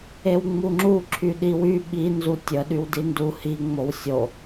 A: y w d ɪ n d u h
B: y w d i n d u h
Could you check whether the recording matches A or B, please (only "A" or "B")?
B